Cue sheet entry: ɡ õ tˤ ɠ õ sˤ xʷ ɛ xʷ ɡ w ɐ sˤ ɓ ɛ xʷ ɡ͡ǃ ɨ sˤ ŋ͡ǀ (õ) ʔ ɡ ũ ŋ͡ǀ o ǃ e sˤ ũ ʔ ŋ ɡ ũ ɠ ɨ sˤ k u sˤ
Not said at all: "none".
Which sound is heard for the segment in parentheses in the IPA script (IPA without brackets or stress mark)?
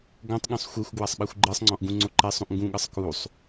ɔ̃